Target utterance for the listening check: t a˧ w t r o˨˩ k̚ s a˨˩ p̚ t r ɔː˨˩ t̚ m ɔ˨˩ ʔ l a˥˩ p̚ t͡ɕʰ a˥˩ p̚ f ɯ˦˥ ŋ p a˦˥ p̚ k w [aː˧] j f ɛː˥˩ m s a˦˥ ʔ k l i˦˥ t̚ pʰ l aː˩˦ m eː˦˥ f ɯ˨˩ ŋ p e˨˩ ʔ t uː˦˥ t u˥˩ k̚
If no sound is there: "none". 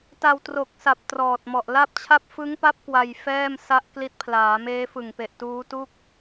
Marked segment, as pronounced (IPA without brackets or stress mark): a˧